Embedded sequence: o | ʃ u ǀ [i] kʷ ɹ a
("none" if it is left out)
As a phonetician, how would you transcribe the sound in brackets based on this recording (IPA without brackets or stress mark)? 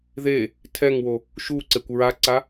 e